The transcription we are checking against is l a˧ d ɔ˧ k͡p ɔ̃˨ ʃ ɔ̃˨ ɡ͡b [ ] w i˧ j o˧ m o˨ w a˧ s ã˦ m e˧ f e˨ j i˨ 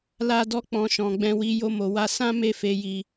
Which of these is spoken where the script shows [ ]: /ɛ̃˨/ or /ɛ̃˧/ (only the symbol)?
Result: ɛ̃˧